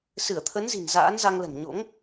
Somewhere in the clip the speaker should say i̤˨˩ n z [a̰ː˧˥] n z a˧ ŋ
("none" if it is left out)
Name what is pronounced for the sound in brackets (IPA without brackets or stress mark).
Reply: a̰ː˧˥